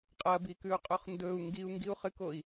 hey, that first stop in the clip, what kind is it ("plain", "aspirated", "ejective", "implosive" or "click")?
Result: ejective